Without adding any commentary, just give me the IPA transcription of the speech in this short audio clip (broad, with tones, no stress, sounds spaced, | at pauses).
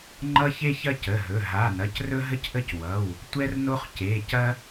ŋ͡ǃ ʌ˦ ç e˦ ç ɐ˦ c ə˩˧˩ ɦ ɵ˩˧˩ ɦ a˩˧˩ n ɐ˩˧˩ c r ɵ˦ ɦ ə˦ c ʔ ə˦ c w ʌ˩˧˩ w | tʷ ɛ˦ r n o˦ χ c e˩˧˩ c ɐ˦